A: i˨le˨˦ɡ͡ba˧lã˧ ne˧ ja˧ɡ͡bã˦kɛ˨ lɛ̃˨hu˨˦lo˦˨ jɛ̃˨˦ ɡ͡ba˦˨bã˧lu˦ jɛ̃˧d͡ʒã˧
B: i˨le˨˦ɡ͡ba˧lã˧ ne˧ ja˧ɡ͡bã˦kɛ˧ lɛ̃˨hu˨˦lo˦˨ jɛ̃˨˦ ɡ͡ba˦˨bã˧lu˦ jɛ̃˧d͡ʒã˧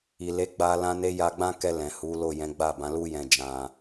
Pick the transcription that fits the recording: B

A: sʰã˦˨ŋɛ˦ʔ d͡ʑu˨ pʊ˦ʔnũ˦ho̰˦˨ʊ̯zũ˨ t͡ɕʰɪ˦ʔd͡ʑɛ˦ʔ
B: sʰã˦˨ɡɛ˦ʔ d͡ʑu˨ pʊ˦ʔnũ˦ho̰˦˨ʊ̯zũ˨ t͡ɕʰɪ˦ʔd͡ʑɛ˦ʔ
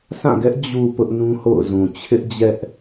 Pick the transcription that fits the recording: B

